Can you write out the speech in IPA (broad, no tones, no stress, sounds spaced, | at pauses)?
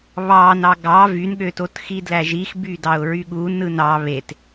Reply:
β ɑ n ɑ ɡ ɑ v y n ɠ ø t o t x i d l æ ʒ i x b y d ɑ ʊ̯ ɹ y ɠ u n ɯ n ɑ β e t